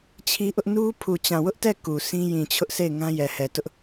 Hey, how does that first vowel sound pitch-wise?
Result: high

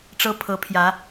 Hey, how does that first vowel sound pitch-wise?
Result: high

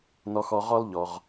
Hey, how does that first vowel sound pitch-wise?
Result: low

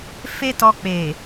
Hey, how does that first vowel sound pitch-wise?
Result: high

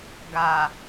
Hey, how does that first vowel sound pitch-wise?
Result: low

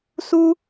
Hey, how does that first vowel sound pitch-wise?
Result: high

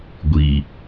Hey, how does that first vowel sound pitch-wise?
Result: low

